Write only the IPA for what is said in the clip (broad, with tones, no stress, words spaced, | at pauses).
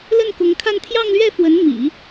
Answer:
lə˥˩nkʊ˧˥ŋkʰa˥˧n t̪ʰjɑ˥˧ŋlɥɛ˥˩fwə˧˥n mḭ˨˩˦